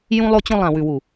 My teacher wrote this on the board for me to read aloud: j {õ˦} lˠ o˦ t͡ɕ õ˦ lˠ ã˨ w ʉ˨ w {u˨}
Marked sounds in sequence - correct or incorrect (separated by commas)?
incorrect, correct